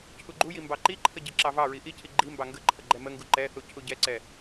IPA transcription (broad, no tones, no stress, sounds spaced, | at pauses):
cʰ u ɡ͡ǃ u j i m b ɑ ǃ i ǃʰ ə ɟ i ǁ ɑ v ɑ ɹ i ʔ i cʰ i ɡ͡ǃ i m b ɑ ŋ ɡ ə ǃʰ ə ɡ͡ǃ ɛ m ə ŋ ɡ u ǃ ɛ θ u cʰ u ɟ ɛ ǀ ɛ